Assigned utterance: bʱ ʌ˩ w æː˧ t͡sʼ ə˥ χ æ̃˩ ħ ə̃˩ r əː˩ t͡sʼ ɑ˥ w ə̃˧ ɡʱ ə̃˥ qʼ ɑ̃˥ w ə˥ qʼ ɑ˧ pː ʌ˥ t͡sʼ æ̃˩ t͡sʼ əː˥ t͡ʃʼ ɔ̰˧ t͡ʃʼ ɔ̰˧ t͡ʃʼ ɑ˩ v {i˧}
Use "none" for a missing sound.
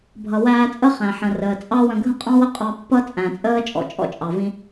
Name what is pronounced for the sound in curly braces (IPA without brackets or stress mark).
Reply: ĩ˧